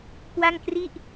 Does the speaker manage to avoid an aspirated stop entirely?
yes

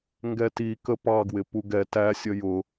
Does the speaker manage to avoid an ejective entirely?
yes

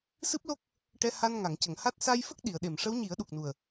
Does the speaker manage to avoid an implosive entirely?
no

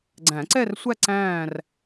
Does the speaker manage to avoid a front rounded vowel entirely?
yes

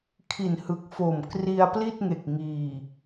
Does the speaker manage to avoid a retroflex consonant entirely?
yes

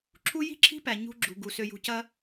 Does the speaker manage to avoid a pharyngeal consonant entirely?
yes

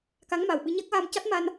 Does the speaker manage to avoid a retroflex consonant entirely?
yes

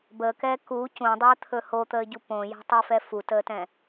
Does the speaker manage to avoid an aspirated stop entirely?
no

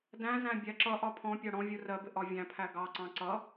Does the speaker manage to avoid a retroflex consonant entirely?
no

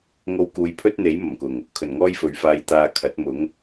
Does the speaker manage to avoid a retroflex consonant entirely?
yes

